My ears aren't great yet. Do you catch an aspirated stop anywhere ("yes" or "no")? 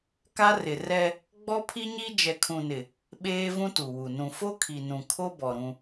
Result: yes